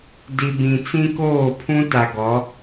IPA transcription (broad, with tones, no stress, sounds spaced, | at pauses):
d i˨ b ĩ˨ t͡s ĩ˦ k oː˦˨ pʰ ũ˦ t a˨ ɡ ɔ˨˦